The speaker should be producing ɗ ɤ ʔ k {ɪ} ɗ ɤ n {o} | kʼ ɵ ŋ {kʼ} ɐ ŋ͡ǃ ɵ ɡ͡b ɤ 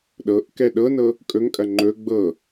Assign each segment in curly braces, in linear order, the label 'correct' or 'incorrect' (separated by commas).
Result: incorrect, incorrect, correct